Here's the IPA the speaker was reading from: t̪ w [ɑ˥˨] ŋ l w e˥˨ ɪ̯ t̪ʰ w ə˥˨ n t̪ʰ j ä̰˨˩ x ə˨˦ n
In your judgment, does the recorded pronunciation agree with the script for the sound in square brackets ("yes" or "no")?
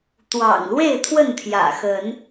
no